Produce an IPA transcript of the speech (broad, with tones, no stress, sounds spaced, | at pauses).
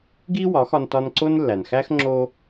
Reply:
ɡ i˥ w ɒ˩˥ x ɒ˧ n t ɒ˧ n ǀ o˥ n lː æ˩ n x æ˥ x ŋ͡ǁ o˧